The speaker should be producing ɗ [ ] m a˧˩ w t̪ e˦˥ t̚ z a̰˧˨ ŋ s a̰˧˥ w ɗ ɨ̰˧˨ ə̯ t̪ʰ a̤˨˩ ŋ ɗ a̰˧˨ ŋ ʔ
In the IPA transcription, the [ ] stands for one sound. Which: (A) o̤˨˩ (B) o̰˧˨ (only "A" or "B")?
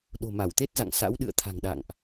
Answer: A